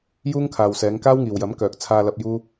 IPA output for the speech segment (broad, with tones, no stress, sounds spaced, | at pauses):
j uː˥ ŋ kʰ aː˨ w s ɛː˨˧ ŋ k aː˥ w ŋ iː˨ w j ɐ˨˥ m k œː˨ k̚ t͡sʰ aː˧ l ɐ˧ p̚ j uː˥